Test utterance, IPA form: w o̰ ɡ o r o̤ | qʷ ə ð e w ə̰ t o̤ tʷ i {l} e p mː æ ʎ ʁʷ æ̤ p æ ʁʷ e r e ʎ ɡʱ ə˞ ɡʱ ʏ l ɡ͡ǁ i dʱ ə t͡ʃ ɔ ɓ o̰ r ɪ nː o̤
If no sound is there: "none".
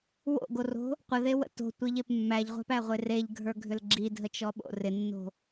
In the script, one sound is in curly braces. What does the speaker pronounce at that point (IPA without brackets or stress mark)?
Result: ʎ